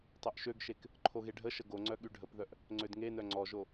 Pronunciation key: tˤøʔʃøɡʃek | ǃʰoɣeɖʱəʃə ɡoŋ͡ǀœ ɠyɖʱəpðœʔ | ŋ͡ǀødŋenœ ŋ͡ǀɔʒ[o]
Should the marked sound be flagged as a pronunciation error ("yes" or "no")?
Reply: no